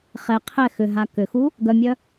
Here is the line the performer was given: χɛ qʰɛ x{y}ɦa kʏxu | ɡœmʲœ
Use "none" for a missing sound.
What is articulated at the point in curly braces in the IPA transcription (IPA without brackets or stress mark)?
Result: ʏ